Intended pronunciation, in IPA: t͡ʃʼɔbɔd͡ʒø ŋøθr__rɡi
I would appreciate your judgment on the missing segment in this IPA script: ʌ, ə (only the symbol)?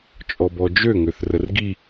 ə